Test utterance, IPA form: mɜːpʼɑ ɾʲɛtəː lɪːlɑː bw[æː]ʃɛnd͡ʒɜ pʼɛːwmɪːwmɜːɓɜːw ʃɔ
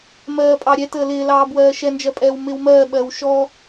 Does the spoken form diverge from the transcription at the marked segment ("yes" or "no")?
yes